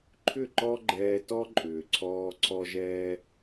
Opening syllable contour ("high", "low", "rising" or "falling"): falling